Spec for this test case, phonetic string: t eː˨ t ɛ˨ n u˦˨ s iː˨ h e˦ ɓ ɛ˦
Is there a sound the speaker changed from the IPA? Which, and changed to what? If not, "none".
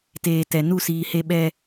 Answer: none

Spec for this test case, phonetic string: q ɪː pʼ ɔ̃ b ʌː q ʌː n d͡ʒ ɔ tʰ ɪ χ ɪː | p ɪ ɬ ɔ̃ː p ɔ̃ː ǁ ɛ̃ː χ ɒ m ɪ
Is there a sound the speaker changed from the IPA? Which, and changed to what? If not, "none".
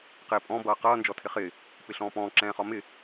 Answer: none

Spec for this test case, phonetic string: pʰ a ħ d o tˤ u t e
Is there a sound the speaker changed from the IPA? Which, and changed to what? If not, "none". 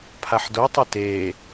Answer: none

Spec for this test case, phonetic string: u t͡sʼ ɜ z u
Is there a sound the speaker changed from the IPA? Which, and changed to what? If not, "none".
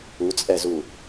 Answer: ɜ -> ɛ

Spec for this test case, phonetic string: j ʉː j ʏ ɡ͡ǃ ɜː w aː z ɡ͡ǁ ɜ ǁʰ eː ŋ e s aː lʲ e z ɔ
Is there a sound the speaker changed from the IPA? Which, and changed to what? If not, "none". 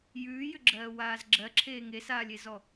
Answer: ɡ͡ǃ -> ɡ͡ǁ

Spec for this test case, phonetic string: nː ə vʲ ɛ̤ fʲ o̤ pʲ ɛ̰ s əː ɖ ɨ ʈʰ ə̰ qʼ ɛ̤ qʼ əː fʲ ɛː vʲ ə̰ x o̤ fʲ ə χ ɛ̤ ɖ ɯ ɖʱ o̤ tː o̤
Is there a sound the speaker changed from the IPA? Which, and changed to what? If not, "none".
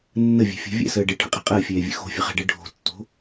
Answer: pʲ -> vʲ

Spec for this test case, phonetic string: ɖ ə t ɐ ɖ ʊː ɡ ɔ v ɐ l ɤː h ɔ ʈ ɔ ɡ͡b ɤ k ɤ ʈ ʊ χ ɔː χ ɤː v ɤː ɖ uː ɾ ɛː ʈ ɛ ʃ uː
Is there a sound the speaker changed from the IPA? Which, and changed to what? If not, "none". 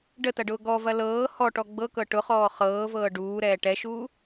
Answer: none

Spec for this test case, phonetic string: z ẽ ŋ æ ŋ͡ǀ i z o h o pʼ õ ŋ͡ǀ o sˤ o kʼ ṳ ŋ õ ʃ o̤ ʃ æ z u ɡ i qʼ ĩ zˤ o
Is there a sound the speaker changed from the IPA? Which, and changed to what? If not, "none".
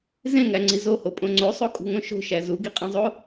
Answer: none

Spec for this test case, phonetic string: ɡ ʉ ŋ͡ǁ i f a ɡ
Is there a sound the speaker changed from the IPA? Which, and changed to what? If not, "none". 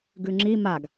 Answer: f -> m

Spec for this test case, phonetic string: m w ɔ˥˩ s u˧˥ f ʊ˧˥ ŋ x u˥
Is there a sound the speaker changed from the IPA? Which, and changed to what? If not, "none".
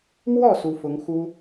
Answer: none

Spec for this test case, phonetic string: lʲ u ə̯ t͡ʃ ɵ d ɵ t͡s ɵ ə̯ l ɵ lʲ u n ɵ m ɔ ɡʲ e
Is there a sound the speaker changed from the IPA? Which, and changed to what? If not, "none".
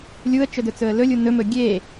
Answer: ɔ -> ɵ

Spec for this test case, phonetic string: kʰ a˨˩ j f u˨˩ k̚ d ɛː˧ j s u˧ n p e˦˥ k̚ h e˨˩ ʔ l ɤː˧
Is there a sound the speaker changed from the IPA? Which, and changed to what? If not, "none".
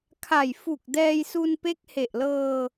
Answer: none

